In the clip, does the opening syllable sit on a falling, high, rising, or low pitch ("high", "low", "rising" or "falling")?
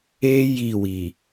high